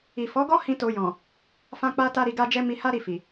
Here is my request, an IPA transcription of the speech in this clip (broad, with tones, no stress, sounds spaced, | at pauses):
i˨ f ɔ˨˦ ɡ ɔ˦ h ĩ˦ t o˧ j ɔ̃˨ | f ã˧ k͡p a˧ t a˧ ɾ i˨ ɡ a˧ d͡ʒ ɛ˧ m i˧ h a˦ ɾ i˦˨ f i˨